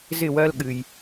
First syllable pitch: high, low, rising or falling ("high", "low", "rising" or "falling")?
falling